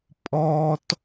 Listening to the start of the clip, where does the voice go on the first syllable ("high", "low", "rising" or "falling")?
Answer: low